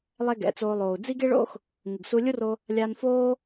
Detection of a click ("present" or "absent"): absent